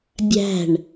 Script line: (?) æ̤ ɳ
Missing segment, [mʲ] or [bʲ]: bʲ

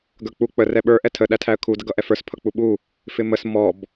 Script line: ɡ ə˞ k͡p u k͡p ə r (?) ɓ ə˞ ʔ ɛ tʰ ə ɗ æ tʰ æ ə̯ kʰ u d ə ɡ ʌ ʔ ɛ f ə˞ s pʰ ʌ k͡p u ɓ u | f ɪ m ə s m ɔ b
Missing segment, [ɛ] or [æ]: ɛ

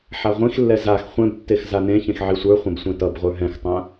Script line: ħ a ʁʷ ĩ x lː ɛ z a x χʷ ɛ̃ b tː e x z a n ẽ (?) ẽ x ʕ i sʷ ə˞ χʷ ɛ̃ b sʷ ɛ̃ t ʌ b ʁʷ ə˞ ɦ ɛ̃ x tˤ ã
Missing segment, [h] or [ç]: ç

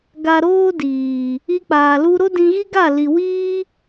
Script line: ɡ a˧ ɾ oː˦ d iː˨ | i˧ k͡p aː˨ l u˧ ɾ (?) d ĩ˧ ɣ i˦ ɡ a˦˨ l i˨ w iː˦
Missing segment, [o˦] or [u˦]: o˦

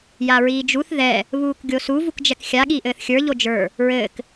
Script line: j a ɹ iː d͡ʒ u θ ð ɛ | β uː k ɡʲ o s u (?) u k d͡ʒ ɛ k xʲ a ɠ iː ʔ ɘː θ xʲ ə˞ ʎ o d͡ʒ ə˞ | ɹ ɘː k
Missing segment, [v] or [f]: v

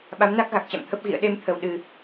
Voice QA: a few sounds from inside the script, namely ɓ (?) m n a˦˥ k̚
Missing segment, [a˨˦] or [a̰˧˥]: a˨˦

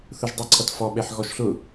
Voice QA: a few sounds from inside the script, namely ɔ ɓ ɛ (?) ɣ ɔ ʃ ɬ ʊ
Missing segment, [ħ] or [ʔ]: ħ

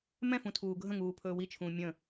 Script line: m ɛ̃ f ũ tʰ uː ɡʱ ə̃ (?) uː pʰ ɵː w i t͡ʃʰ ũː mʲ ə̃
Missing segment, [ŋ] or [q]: ŋ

